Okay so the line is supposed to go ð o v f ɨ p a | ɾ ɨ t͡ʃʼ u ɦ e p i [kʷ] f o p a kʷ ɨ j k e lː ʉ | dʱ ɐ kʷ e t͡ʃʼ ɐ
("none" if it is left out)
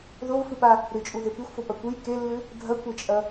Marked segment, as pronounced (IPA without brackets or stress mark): xʷ